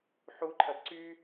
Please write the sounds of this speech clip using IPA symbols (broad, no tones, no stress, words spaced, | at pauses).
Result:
ħuǃʰɐd ǀy